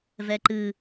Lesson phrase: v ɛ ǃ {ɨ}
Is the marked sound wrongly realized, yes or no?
no